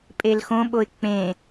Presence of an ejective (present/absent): present